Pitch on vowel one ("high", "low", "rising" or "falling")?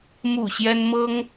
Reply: low